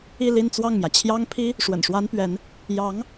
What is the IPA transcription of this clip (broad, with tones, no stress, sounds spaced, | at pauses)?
i˥˧ l i˥˧ n t͡s w ɑ˥˩ ŋ m j ä˩ t͡ɕʰ j ɑ˥ ŋ pʰ i˥ | ʂ w ə̰˨˩ n ʂ w a˥ n p ɥ ɛ˧˥ n | j ɑ˧˥ ŋ